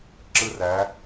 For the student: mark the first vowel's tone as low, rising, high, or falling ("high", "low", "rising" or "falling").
high